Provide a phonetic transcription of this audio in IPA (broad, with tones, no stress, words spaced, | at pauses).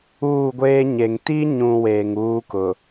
uː˦˨ ɡʷeː˦ɲe˨ŋ ti˦ɲũ˨ weː˨ŋuː˦kʊ˨